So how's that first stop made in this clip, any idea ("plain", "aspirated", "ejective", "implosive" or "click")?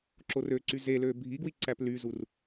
click